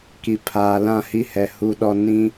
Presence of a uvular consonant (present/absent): absent